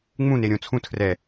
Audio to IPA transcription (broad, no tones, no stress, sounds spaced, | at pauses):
ŋ͡m ũ n e ɾʲ õ t͡sʰ ũ tʰ r ɛ